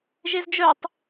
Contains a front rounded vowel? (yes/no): yes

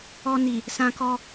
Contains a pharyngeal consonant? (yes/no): no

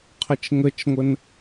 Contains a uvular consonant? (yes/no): yes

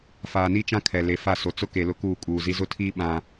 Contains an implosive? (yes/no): yes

